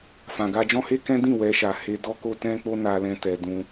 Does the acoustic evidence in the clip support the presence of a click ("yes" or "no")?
no